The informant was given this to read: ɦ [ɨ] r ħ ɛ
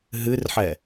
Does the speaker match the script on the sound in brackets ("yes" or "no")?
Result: yes